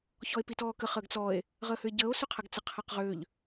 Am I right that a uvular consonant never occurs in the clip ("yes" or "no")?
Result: no